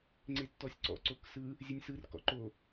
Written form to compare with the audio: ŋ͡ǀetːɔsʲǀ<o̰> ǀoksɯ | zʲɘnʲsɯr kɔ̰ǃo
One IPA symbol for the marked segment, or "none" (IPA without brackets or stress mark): ɔ̰